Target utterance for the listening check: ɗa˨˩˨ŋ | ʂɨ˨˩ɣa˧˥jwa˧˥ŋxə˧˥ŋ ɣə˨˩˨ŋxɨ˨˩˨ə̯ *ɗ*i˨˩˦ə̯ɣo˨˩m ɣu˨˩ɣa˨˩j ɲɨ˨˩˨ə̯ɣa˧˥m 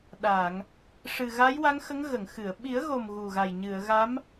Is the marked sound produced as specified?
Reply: no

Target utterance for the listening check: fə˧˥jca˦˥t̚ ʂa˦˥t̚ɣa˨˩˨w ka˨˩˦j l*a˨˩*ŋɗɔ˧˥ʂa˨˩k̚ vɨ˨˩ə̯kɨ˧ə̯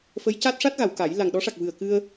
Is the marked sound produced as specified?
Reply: yes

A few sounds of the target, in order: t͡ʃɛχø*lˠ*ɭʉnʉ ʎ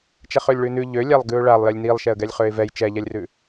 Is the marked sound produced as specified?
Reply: no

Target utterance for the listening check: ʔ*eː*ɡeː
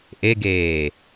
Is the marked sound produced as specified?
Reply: no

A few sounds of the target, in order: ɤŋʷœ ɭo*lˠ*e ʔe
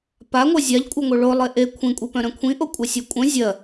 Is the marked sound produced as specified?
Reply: yes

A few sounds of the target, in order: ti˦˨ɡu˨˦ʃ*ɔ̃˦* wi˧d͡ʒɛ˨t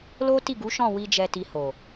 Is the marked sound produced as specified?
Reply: no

